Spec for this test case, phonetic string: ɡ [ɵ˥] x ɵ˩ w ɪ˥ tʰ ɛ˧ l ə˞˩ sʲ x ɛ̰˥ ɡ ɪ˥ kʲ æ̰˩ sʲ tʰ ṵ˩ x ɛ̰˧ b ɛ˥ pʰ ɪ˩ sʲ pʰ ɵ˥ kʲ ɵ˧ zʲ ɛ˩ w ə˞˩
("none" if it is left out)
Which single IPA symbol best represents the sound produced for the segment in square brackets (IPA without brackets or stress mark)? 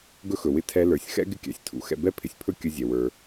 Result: ɵ˥